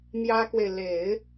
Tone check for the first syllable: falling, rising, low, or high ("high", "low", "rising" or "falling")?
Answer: high